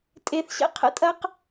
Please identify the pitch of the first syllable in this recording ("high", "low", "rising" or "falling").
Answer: low